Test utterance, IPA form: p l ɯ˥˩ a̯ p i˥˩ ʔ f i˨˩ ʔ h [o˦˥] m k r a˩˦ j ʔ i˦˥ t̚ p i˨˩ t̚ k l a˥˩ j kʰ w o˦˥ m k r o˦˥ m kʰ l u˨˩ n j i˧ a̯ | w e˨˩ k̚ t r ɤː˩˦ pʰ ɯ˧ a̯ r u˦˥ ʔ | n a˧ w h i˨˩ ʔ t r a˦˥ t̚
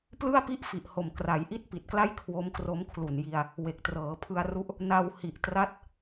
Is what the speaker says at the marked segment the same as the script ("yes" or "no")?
no